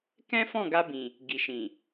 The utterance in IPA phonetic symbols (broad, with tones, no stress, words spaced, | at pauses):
kɛ̃˦fɔ̃˦˨ɡa˧bĩ˨ | ɡi˨ʃĩ˨